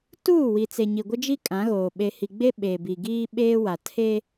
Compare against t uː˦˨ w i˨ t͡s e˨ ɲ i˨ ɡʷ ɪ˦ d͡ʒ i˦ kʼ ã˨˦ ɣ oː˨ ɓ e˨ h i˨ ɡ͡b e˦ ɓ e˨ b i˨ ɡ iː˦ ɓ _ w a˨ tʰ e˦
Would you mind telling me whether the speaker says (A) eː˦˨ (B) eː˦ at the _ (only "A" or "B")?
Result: B